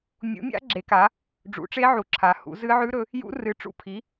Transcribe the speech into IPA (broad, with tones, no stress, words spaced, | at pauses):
mʲṵ˨˥mʲa̰˦˥ ɡ͡ǁe˨˥ka˨˥ | ɖ͡ʐṵ˨˥ʈ͡ʂe˦˥ʕu˨˥ ǁʰa˨˥hṵ˨˥ zɨ˦˥ ʕʉ˦˥ɾɵ˨˥ | jṵ˦˥ rɨ˨˥ʈ͡ʂṵ˦˥pʰi˨˥